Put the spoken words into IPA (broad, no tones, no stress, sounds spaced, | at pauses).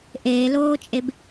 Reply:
ʔ eː l oː t͡ʃʼ e b